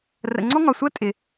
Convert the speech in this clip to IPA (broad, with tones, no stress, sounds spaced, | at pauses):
r ə̰˨ ŋ͡ǀ ɔ˦ ŋ ɒ˨ sʷ ɜ˦ tʼ ɪ˨